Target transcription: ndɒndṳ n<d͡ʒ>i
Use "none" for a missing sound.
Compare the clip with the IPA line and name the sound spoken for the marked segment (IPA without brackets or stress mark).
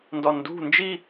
d͡ʒ